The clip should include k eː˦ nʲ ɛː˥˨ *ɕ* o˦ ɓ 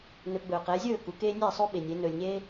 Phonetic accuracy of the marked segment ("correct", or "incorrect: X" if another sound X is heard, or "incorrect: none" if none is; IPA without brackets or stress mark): incorrect: sˤ